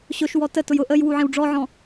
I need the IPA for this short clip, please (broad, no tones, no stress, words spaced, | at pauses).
ɕʊʃwɔ tətʊj ʊ ʔəjwu ʕĩwɖ͡ʐɔʕɔ̃